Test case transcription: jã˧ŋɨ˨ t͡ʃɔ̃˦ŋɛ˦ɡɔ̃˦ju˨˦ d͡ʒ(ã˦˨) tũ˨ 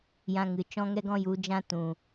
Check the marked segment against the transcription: incorrect: ã˦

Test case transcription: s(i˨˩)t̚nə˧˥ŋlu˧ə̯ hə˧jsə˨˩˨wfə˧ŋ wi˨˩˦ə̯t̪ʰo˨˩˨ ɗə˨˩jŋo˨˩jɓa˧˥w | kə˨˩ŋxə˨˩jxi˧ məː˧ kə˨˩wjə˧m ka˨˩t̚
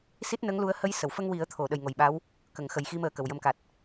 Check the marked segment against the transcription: incorrect: i˦˥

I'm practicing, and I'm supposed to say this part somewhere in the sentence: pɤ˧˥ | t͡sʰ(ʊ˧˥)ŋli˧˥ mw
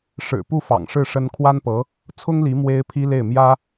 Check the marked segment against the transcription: incorrect: ʊ˥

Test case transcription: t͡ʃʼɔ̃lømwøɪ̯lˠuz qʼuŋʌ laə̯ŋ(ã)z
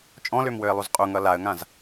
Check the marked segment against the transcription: correct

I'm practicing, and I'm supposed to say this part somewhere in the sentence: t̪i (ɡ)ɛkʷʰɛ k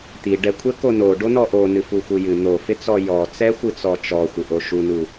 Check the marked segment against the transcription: incorrect: ɖ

